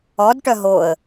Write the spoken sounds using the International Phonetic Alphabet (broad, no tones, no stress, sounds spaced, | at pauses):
ɔ d ʈ œ ɦ o ə̯